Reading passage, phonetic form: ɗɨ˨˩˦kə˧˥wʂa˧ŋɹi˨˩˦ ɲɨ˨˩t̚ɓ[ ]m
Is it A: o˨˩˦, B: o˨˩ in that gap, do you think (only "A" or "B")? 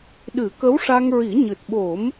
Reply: A